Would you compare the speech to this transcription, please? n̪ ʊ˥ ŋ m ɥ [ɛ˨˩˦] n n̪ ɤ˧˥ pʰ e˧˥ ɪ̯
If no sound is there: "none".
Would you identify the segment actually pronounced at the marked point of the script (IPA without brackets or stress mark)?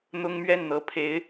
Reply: ɛ˥˩